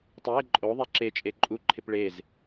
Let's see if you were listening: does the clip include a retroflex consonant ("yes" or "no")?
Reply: yes